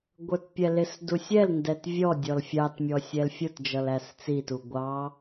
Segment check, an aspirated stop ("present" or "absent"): absent